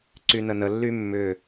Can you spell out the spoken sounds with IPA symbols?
ǀ y n ə n ə lː y mː ʏ

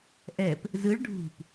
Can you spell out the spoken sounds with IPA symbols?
ʔ ɛ p | z ɯ ɭ ɖʱ ṳ p

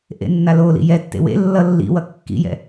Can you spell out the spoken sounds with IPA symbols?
ʔ ḛ nː a l o l ḭ j ɛ tː ḛ w ḛ lː ʌ lː ḭ w ʌ kː ḭ j ɛ̰

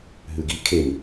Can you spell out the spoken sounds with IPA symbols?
ɦ ʉ ɡ i kʰ e m

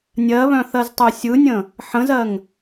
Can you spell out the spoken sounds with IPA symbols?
nʲ ɜ β œ̃ θ ɜ z tˤ œ sʲ ɯ nʲ ə̃ | ħ ə̃ z ɜ ŋ

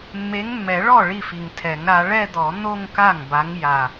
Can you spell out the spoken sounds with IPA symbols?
mː e˨˦ ŋ mː ɛ˨˩˦ ɭ ɔ˥˩ ɭ i˥˩ f i˨˩ ŋ tʰ ɛ˨˩˦ ŋ ɾ a˨˦ ɭ ɛ˥˧ d̪ ɔ˨˩˦ n̪ o˥˧ ŋ k a˥˩ ŋ b a˨˦ ŋ j a˨˩

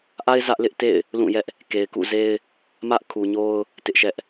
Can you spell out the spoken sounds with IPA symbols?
ʔ a˦ ɪ̯ z ä˦ ʔ l ɪ˦ ʔ t ḛ˦˨ ɪ̯ | l ũ˦˨ j ɛ˦ ʔ | k e˨ ɪ̯ k ṵ˦˨ z e˦ ɪ̯ | m ä˦ ʔ kʰ u˨ ɲ o˦ ʊ̯ | t ɪ˦ ʔ ʃ ɛ˦ ʔ

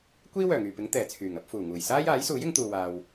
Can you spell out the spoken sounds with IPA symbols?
kʷ iː˥ w œː˨˩ ŋ yː˨˩ p ɪ˨˥ ŋ t̪ ɛː˨˩ t͡sʰ yː˨˩ ŋ ɐ˨˥ p̚ f uː˨˩ ŋ uː˨˩ j s aː˥ j aː˨˥ j s uː˨˥ j ɪ˨˧ ŋ t̪ uː˨ w aː˨ w

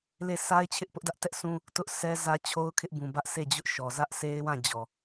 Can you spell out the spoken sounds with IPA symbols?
l e˦˨ sʰ a˦ ɪ̯ t͡ɕʰ ɪ˦ ʔ p ʊ˦ ʔ d ä˦ ʔ t ɛ˦ ʔ sʰ ũ˦ | t ʊ˦ ʔ sʰ ɛ˦ z ä˦ t͡ɕʰ o˦ ʊ̯ kʰ ɪ˦ ʔ b ũ˨ b ä˦ ʔ sʰ e˦˨ d͡ʑ ʊ˦ ʔ ʃ ɔ˨ z ä˦ ʔ s e˦ ɪ̯ w ã˦˨ d͡ʑ ɔ˨

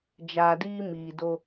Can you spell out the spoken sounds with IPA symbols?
d͡ʒ aː˨ d iː˦ m iː˨ d o˦

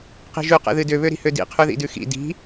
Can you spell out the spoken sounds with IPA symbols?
q i̤ ʒ ʉ q ɛ̰ ð ɨ d ø β ø ɾ i̤ h ø d ḭ qʰ ʉ ð ḭ d ʉ x ḭ d i̤

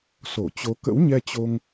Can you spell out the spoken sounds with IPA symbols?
s o˧˩ t͡ɕ o˨˦ k ə̰˧˥ w ɲ ɛ˧ t͡ɕ o˧ ŋ

